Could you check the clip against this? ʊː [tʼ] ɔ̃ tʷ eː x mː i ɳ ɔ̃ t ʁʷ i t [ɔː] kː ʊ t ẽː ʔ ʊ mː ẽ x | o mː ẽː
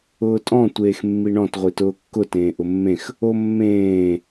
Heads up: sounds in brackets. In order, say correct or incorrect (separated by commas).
correct, incorrect